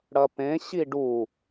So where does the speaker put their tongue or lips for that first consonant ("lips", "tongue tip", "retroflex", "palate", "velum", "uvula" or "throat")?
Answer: retroflex